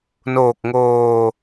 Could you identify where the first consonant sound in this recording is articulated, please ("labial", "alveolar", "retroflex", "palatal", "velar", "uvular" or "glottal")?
alveolar